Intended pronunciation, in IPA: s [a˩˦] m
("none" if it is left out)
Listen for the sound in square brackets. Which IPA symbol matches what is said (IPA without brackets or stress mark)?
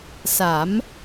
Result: a˩˦